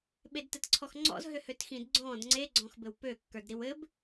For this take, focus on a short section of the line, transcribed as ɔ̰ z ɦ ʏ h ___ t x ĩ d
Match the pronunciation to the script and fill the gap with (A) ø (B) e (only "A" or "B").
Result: A